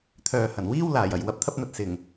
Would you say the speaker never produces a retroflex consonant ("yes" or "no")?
yes